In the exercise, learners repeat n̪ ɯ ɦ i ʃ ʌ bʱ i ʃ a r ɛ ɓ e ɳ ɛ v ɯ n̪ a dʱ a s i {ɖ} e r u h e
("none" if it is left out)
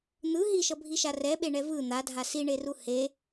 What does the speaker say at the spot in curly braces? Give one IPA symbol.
ɳ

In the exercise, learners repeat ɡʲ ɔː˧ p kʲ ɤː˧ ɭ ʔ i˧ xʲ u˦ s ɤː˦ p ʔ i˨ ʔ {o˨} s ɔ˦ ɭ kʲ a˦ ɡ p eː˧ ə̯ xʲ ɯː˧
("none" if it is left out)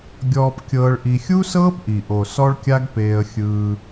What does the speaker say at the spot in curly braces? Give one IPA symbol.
o˨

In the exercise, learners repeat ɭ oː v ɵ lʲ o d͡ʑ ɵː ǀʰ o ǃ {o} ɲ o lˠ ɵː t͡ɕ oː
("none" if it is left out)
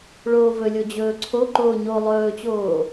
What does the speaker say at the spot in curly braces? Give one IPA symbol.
oː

